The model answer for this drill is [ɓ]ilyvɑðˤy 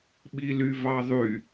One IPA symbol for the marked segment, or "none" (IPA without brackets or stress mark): ɓ